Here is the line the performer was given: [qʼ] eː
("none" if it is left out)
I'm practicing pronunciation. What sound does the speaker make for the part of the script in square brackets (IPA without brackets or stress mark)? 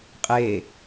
qʼ